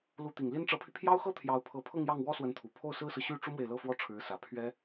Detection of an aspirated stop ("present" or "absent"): present